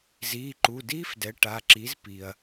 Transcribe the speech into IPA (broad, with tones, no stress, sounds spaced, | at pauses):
z iː˩˧˩ ǃ u˩˧˩ d iː˦˥ f d ɛ˩˥ ʈ a˩˧˩ ǁ i˩˥ z p iː˩ ɐ̯